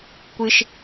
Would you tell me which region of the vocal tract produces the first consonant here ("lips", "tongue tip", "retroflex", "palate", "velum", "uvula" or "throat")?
velum